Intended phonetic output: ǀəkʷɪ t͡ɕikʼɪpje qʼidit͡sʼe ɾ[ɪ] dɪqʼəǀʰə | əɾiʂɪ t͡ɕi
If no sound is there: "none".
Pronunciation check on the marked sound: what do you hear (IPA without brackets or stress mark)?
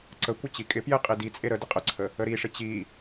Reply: ə